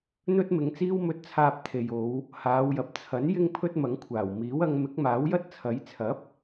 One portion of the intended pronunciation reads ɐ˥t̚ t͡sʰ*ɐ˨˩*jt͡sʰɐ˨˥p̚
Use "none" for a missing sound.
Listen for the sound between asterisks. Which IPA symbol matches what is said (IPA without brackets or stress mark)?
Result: ɐ˨˥